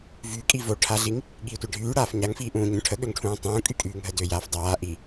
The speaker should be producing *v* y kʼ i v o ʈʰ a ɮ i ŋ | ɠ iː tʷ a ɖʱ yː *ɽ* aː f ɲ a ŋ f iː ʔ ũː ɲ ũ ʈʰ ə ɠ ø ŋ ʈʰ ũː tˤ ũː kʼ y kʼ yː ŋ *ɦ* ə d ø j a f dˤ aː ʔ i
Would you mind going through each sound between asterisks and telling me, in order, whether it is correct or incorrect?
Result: correct, correct, correct

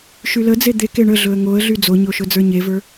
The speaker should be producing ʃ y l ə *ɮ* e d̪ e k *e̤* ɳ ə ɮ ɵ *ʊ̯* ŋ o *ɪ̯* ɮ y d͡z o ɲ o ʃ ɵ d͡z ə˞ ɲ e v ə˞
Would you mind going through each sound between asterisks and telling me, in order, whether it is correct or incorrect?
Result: incorrect: d͡z, incorrect: e, incorrect: ə̯, incorrect: ə̯

